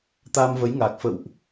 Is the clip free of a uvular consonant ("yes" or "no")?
yes